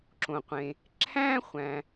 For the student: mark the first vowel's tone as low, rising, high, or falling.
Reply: low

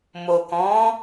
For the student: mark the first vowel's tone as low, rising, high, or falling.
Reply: low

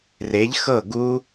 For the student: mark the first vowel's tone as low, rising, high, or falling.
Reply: rising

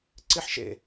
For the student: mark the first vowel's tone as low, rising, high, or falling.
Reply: high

